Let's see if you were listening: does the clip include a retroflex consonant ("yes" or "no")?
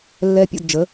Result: no